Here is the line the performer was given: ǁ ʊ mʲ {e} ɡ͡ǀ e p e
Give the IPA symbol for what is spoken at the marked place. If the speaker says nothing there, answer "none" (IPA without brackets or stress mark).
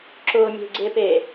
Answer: e̤